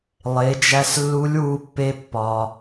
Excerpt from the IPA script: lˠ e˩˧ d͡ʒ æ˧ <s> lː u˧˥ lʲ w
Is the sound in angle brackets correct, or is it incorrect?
correct